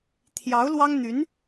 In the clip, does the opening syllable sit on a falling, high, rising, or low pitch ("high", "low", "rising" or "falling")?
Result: rising